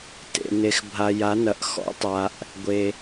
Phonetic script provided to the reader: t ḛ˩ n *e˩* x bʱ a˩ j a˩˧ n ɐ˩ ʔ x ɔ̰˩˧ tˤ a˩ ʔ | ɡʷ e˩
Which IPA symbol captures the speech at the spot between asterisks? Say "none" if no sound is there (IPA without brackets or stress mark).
e˩